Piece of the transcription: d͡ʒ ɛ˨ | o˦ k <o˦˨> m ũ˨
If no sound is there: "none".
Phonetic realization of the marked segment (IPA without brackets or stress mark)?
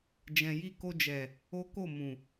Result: o˦˨